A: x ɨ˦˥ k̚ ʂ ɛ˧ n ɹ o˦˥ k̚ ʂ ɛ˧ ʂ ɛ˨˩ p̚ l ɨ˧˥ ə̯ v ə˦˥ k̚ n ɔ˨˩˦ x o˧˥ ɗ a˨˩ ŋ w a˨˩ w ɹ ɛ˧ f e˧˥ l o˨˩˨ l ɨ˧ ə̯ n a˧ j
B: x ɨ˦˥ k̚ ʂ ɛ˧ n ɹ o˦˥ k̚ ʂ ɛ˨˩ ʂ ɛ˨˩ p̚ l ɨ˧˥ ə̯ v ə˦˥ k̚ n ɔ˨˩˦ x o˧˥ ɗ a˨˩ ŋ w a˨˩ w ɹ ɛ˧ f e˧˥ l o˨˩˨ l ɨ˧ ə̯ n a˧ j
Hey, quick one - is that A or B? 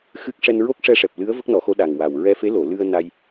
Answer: A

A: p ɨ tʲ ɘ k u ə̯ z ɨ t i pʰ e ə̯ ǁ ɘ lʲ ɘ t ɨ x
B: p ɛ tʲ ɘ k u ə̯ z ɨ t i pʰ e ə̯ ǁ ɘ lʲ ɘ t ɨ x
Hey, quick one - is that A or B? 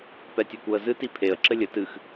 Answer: B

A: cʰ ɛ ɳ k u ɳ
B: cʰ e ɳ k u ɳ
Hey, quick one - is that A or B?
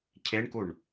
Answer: B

